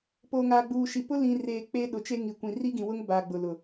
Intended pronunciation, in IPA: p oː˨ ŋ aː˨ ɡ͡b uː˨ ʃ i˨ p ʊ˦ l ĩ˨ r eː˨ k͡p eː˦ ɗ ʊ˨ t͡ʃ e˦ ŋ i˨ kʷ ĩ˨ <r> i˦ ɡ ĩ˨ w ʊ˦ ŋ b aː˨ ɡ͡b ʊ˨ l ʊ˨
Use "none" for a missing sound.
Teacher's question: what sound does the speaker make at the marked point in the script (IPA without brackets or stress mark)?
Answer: r